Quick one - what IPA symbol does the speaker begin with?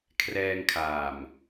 kʰ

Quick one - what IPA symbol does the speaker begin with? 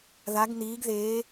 ð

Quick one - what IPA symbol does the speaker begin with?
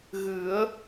ɣ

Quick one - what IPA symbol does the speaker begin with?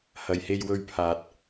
h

